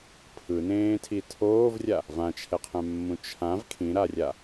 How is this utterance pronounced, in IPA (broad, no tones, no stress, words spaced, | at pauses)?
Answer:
pʰɯnẽːtʰi tʰoːvrʲa | vãt͡ʃʰɛqʰɛ̃mːũ t͡ʃʰãv kʰĩɾarʲa